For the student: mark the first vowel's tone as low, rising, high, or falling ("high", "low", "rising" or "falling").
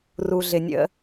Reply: low